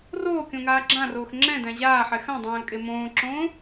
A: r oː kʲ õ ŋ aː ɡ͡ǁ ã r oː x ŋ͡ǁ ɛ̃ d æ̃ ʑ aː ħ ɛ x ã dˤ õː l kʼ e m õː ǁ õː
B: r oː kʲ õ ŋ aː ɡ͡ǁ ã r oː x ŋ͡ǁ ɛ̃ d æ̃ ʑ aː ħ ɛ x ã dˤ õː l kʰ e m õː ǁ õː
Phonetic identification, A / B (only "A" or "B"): A